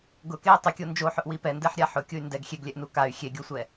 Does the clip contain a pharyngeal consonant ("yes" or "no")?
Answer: yes